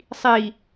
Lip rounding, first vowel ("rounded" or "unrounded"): unrounded